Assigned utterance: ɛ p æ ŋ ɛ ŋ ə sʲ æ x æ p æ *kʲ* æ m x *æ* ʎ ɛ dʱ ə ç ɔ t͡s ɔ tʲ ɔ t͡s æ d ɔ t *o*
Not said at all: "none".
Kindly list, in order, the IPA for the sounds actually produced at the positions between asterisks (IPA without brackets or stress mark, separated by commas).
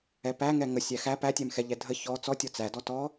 tʲ, ɛ, ɔ